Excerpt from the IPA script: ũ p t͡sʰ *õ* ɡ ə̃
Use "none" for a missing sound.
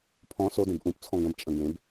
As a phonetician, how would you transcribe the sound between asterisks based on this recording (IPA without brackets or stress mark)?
ɔ̃